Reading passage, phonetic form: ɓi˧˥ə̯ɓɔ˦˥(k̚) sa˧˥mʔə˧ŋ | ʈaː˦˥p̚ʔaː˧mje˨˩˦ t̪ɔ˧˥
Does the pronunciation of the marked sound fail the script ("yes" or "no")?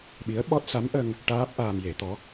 yes